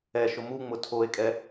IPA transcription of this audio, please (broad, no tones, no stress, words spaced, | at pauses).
ɛʃʊ muŋ͡mʊ tʰoe̯kʼɛ